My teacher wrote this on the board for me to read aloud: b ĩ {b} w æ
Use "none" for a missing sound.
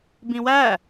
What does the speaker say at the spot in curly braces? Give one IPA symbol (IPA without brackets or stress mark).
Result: none